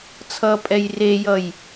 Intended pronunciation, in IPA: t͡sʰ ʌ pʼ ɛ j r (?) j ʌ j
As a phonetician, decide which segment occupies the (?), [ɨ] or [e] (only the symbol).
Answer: e